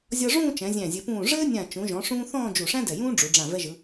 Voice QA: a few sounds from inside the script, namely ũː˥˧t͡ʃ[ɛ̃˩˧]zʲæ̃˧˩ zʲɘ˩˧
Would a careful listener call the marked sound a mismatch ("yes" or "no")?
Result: no